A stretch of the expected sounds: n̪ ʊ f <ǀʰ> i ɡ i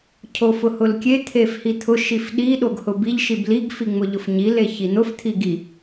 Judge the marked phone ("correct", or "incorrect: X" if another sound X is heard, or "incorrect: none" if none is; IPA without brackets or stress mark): incorrect: t̪ʰ